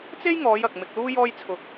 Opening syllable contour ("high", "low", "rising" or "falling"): high